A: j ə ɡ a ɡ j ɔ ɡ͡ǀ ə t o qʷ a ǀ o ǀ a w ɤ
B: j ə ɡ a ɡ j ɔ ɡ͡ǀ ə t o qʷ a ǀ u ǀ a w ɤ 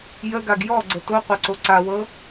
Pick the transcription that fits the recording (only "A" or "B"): A